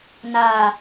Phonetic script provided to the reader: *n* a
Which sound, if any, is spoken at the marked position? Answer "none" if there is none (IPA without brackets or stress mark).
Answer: n